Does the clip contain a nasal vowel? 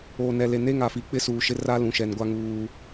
yes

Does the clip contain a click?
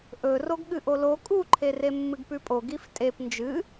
yes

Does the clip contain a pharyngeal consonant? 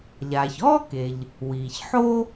yes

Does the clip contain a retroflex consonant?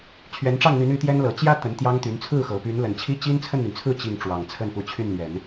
yes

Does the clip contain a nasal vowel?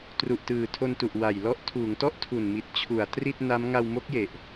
no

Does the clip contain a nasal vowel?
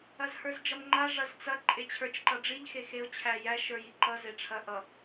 no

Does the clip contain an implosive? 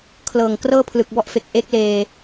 no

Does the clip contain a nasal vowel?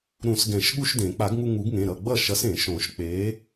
yes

